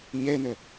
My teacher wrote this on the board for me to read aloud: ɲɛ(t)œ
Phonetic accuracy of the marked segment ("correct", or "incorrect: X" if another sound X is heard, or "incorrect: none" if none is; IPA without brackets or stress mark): incorrect: n